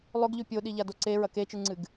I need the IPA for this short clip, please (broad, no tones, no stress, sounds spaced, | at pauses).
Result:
lˠ ɵ ɡ ʎ ʉ pʲ o ɗ i ʎ a d o ǀ e ɹ ɐ k e t͡ʃ ɨ ŋ͡ǀ ɨ ɡ